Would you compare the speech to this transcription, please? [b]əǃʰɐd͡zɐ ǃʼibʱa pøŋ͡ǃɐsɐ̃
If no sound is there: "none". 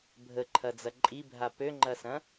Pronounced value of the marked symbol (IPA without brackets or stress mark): bʱ